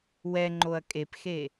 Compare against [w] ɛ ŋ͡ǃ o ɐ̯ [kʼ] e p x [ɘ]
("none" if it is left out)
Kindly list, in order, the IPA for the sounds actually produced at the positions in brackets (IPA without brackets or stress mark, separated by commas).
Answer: w, kʼ, e